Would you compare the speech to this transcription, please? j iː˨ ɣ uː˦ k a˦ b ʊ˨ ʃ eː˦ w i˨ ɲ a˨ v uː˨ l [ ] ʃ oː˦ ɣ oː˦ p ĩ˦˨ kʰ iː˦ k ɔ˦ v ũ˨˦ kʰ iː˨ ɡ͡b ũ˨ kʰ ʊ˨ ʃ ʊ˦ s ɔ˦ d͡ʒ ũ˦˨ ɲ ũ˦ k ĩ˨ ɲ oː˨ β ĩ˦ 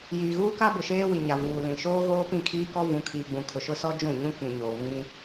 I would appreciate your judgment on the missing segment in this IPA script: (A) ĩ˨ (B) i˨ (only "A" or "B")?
A